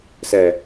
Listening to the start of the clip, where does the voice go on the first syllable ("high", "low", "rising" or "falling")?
low